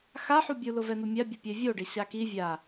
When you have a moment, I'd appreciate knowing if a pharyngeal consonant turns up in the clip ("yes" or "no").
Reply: yes